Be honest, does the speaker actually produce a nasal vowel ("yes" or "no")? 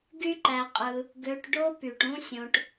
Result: yes